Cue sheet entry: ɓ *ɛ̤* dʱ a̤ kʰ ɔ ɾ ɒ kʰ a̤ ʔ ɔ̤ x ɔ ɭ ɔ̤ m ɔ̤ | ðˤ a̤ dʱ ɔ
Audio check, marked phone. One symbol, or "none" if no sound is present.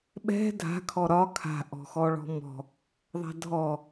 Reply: ɛ̤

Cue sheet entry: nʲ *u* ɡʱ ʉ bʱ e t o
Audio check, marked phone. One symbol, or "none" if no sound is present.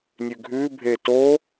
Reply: ʉ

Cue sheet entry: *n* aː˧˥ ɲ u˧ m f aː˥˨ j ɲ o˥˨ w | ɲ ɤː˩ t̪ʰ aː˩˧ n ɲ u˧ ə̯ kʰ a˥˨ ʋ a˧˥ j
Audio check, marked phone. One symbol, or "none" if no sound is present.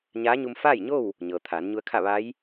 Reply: ɲ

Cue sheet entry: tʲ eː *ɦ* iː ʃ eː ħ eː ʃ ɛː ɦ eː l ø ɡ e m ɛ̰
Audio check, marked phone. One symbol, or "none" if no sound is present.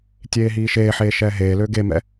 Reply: ɦ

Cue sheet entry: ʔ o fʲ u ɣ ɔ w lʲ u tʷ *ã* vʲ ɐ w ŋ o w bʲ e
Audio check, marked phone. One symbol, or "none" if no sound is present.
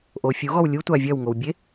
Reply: a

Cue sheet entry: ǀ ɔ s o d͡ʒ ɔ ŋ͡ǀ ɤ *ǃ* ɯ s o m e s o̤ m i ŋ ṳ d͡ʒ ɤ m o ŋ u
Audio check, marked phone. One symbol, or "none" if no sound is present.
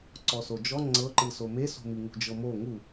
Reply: ǃ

